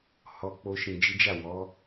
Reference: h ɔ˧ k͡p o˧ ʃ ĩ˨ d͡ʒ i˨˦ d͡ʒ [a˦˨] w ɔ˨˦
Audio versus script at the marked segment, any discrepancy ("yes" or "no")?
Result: no